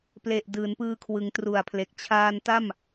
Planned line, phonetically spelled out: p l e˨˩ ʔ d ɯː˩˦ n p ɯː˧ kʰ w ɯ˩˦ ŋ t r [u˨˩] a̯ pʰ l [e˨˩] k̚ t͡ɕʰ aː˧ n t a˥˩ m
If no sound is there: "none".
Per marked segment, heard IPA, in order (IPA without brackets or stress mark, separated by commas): u˨˩, e˨˩